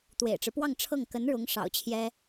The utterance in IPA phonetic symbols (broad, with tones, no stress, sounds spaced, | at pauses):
t̪ w ḛ˨˩ ɪ̯ ʈ͡ʂ ɻ̩˦ p w ɑ˥˧ ŋ ʈ͡ʂʰ ɤ˥˩ ŋ k ə˧˥ n ɻ ʊ˧˥ ŋ ʂ ɑ̰˨˩ ʊ̯ t͡ɕʰ j ɛ˥